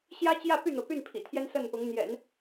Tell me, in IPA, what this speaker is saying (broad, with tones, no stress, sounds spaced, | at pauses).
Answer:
ɕ j ä˥ t͡ɕ j ä˥˧ p y˥˩ n̪ ɤ˩ p y˥˩ n pʰ ḭ˨˩ t̪ʰ j ɛ˥ n s ə˥˩ n p ʊ˧˥ ŋ n̪ j ɛ̰˨˩˦ n